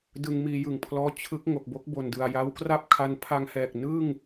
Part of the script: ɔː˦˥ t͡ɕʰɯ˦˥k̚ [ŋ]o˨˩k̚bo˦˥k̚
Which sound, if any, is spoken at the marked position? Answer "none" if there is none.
ŋ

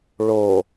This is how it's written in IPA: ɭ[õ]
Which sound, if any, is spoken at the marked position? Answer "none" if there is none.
o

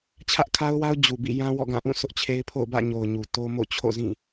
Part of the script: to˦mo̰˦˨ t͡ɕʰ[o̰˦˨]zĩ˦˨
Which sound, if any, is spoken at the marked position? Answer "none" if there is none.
o̰˦˨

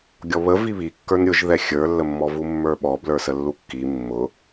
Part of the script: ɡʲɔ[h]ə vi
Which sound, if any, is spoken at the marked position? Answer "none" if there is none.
β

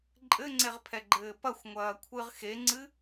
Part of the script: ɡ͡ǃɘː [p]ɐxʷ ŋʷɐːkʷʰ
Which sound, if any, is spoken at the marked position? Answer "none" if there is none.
p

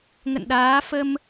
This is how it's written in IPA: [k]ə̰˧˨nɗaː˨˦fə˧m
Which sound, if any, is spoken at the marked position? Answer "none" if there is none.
ŋ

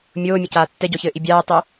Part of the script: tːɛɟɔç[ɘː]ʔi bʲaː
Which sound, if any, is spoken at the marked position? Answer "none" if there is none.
ɘː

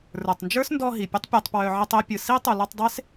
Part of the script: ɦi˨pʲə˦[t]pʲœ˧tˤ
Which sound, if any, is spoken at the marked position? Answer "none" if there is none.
tˤ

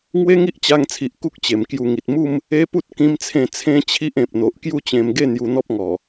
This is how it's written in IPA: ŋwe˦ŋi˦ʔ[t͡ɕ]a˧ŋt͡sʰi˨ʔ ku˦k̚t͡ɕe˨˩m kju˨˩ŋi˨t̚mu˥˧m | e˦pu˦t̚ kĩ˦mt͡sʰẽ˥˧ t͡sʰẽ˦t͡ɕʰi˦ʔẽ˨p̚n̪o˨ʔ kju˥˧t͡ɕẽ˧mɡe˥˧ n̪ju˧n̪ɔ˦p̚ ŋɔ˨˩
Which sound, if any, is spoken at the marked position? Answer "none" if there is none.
t͡ɕ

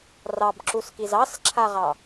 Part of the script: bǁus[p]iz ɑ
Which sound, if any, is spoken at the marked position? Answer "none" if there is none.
k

